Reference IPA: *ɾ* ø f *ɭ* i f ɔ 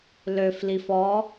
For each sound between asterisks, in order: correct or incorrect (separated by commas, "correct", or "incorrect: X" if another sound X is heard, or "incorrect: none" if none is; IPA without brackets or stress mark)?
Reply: incorrect: l, incorrect: l